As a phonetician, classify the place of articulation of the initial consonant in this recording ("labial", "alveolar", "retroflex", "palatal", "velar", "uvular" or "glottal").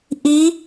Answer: glottal